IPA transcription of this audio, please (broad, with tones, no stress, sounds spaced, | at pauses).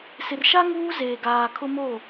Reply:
s ɪ˨ r ʃ a˦ ŋ uː˦ z eː˨ ɡ aː˨ kʰ ʊ˦ m o˦˨